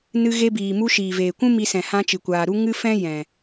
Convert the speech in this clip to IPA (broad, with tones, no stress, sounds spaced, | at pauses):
n ɨ˧ ɣ e˧ b iː˨ m u˧ ʃ iː˨ v eː˨ kʷ ũ˦ m i˧ s ɛ̃˨ h ã˧ t͡ʃ ɨ˨ kʷ aː˨ ɾ u˦ ŋ ɨ˦ f ɛ̃˦ j ɛ̃˨